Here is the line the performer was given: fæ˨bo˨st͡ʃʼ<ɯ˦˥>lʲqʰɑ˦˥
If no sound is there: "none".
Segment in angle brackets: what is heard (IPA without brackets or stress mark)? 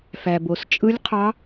ɯ˦˥